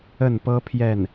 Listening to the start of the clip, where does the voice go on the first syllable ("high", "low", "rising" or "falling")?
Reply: falling